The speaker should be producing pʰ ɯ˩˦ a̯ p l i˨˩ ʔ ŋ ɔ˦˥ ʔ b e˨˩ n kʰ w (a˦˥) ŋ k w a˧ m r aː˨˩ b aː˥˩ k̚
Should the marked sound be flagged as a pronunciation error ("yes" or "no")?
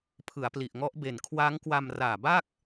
yes